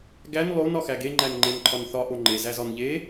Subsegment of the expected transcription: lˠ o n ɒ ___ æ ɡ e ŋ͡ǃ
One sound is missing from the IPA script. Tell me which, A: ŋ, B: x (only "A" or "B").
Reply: B